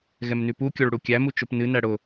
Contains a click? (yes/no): no